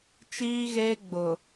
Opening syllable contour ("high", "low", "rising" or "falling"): high